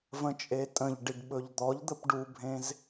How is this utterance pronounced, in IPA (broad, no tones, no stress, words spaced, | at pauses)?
və̃t͡ʃʼetʼə̃ʎɖiɖ ɓɵʎd̪ɔʎd̪əp ɖubʱẽz